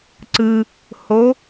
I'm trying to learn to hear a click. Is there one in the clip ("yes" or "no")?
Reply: yes